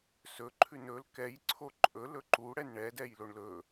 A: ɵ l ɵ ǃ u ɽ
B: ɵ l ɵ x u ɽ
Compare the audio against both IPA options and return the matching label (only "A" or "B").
A